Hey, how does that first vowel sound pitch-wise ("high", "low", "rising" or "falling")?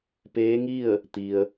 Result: rising